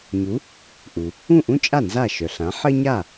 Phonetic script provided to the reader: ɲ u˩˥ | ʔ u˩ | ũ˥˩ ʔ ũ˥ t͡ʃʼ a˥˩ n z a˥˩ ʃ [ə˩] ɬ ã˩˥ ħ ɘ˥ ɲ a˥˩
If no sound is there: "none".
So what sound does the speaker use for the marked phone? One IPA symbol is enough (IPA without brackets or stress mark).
œ˩